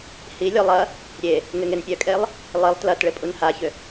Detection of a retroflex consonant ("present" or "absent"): present